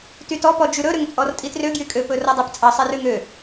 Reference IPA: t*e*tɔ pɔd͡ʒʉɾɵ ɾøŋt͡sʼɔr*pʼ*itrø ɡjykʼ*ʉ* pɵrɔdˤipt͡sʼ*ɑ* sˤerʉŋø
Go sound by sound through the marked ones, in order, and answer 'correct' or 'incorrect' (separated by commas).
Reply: incorrect, incorrect, incorrect, correct